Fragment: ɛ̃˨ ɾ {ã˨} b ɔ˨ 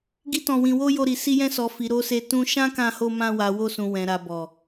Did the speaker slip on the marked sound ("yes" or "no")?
yes